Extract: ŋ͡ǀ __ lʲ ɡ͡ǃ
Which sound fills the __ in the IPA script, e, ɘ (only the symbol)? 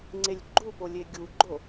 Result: e